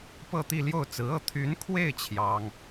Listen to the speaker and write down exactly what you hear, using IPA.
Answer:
p ɤ˥˧ t̪ i˥˧ l j o˥˩ ʊ̯ t͡s ɹ̩˧˥ ɤ˥˩ t̪ʰ y˧˥ n kʰ w e˥˩ ɪ̯ t͡ɕʰ j ɑ˥ ŋ

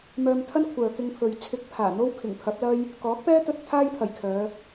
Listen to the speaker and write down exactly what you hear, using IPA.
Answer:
m œː˧ m t̪ʰ ɐ˥ n kʷʰ œː˨ k ɪ˧ ŋ pʰ ɵ˨ ɥ t͡sʰ ɪ˧ k̚ pʰ aː˨˩ n̪ o˥ w kʰ ɪ˨˩ ŋ pʰ ɐ˨˥ p̚ l ɐ˥ j | k ɔː˨˥ k̚ p ɛː˥ t̪ ɵ˧ t̚ t̪ʰ aː˥ j pʰ ɐ˨˩ j kʰ œː˨˧

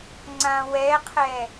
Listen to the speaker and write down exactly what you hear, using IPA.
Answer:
ŋ͡ǀ ã w ɛ qʰ ɛ

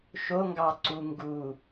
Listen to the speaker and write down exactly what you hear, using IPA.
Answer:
ʃ o ŋ ɡ ɑ ǀ u ŋ ɡ u

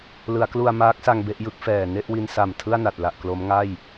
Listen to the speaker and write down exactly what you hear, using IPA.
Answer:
l ɯ˩˦ a̯ k l u˧ a̯ m aː˦˥ k̚ s a˧ ŋ b e˥˩ ʔ j ɯ˥˩ k̚ f ɛː˨˩ n e˥˩ ʔ w i˧ n s a˨˩ m tʰ ɯ˥˩ a̯ n a˨˩ t̚ l a˨˩ ʔ k l o˦˥ m ŋ a˥˩ j

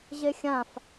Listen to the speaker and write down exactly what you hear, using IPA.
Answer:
ʑ e xʲ ã f

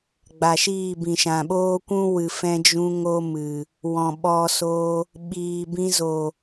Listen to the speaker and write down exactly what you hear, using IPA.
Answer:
ɡ͡b a˨ ʃ iː˦˨ b ĩ˨ ʃ ã˨ ɓ oː˦ kʷ ũ˦ w ɨ˨ f ɛ̃˧ d͡ʒ ũ˧ ŋ o˦ m ɨ˨ | w ɔ̃˨ ɓ ɔ˧ s o˧ | ɓ iː˨ b ĩ˧ z o˨

